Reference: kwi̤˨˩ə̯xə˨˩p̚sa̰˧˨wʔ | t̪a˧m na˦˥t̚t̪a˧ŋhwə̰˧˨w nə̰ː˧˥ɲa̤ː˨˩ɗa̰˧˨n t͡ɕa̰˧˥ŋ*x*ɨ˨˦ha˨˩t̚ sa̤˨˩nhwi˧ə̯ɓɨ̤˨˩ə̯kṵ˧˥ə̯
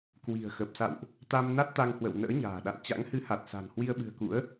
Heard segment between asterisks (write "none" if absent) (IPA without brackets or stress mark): h